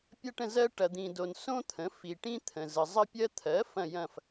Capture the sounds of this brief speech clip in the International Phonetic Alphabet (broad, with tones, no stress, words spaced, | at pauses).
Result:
pʲɐ˥ʈə̃˥˧zɜ˥ ʈɐ˨d̪ĩ˨do˨n sõ˥t̪ʰə̃˩˥ fi˨ʈĩ˥t̪ʰə̃˨ zə˨zˤə˥pʲɜ˥ t̪ʰɜ˩˥ fɐ̃˥˧jɐ̃˥˧f